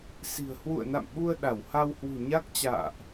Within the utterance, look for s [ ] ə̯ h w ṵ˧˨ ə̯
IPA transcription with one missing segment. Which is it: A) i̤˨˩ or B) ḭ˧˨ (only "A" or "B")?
A